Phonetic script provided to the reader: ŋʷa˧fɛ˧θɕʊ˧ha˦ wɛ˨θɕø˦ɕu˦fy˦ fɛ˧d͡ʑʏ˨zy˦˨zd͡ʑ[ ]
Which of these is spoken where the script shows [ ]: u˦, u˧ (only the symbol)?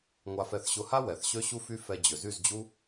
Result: u˦